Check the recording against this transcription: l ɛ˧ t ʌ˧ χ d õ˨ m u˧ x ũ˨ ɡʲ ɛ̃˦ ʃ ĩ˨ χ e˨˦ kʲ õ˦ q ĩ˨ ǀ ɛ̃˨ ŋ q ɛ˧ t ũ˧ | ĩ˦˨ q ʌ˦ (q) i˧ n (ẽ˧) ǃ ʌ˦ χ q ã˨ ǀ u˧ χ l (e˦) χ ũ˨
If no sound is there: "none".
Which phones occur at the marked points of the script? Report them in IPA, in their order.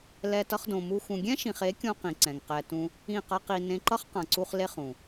q, ẽ˧, e˦

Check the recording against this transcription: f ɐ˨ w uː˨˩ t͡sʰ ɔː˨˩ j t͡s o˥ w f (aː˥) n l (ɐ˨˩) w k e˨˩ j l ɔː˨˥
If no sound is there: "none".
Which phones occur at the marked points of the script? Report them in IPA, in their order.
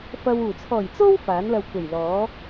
aː˨˥, ɐ˧

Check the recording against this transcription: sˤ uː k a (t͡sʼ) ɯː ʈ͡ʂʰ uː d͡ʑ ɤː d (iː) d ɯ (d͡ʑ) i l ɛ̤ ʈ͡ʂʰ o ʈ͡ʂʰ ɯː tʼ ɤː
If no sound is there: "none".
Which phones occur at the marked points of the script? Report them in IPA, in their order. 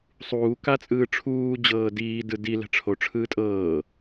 t͡sʼ, iː, d

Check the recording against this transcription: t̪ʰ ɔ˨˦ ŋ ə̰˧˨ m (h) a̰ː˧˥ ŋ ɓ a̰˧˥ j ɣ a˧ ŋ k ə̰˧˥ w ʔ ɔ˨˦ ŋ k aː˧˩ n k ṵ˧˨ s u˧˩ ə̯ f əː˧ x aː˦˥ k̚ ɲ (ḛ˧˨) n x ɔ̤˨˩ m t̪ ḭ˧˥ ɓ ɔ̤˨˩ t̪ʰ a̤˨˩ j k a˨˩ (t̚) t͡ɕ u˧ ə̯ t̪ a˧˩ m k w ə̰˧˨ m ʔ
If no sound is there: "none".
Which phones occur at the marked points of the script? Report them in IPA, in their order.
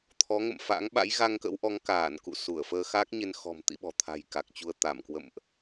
f, e˧, k̚

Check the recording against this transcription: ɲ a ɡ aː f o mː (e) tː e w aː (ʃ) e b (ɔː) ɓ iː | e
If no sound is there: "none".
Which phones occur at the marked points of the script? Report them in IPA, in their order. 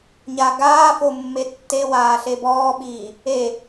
e, ɬ, ɔː

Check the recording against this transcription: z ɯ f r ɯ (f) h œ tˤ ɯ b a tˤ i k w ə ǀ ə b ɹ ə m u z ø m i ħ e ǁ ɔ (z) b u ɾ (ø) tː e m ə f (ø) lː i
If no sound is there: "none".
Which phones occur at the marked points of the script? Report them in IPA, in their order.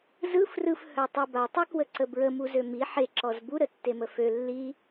f, z, ə, ø

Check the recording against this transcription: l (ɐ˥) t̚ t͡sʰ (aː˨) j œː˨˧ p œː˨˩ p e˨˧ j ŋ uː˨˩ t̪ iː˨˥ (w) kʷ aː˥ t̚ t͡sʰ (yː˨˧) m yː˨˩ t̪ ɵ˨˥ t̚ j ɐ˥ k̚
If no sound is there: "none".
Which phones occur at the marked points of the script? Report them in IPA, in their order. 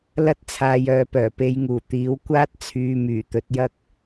ɐ˥, aː˨˧, w, yː˨˧

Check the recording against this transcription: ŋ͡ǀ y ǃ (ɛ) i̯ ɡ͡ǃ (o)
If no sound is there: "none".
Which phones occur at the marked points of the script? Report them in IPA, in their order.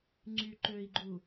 ø, u

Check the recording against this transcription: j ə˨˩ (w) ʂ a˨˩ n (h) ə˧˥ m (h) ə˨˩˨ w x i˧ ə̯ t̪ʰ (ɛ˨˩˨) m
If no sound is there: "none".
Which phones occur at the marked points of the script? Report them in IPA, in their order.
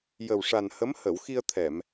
w, h, h, ɛ˨˩˨

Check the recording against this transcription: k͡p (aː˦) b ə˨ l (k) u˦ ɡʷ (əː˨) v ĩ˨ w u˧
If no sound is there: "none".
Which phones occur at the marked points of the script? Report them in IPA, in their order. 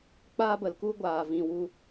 aː˦, k, aː˨

